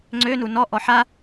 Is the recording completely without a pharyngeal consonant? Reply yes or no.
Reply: no